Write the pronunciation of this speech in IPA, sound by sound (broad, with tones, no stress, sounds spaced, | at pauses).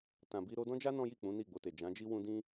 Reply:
t ã˨ b i˧ ɾ o˧ d ɔ̃˦ d͡ʒ a˦ n ɔ̃˦ j i˦˨ k͡p ũ˨˦ n i˦˨ ɡ͡b o˧ t e˨ d͡ʒ ã˨˦ d͡ʒ i˦ w ũ˧ d ĩ˦